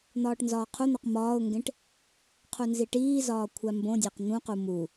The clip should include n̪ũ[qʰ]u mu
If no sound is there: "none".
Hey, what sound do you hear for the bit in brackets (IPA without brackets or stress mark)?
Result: q